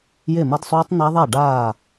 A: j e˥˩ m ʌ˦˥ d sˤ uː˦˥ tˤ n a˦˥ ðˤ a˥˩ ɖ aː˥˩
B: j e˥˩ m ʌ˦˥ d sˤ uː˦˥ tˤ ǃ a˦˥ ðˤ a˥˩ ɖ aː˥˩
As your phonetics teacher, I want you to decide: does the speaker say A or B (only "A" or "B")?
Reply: A